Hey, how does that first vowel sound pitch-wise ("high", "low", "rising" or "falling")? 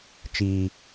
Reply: low